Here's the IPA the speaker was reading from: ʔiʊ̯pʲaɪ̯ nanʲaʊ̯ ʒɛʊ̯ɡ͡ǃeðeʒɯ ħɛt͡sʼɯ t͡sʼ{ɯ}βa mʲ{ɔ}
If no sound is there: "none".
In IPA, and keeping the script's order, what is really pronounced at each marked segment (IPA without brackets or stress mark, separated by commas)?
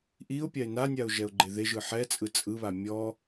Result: ɯ, ɔ